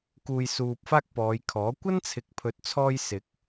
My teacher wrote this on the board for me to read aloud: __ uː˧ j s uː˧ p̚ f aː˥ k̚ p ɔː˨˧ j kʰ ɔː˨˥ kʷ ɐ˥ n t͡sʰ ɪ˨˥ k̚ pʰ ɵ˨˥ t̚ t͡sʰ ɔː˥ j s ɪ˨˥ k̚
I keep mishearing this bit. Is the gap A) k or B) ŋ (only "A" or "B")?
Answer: A